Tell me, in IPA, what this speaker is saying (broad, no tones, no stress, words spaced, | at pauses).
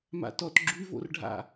ma̰tɔt ɡ͡ǁyvo̰rɖʱa̰